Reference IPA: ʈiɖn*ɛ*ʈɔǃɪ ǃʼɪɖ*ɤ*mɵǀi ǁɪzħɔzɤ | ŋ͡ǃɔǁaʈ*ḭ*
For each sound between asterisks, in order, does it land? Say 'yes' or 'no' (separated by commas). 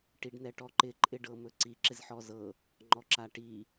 yes, yes, no